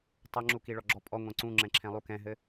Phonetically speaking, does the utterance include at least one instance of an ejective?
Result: yes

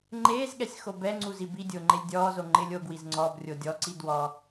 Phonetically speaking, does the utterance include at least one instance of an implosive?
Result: yes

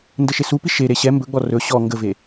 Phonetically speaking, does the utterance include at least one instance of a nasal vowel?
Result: no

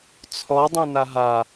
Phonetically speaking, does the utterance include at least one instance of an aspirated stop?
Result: yes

